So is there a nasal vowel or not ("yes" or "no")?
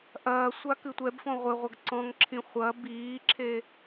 yes